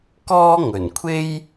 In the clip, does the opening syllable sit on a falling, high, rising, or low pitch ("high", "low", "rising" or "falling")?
high